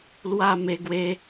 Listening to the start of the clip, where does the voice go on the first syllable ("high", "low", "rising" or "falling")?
falling